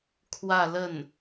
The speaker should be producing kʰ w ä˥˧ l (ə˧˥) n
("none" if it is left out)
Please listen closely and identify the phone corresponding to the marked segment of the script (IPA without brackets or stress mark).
ə˥˩